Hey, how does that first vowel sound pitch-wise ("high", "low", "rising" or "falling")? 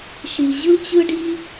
low